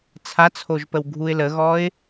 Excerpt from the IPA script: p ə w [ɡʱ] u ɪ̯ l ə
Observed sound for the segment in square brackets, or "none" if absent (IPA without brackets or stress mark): ɡʱ